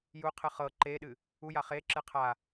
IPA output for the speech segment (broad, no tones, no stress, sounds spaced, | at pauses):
j u qʰ ɨ χ ɤ ǃ e ɗ ɨ | u j a χ e ǁ ɨ qʰ a